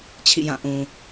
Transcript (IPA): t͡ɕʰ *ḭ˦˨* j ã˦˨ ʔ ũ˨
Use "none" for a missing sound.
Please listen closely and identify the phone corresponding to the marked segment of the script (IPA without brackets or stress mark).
ḭ˦˨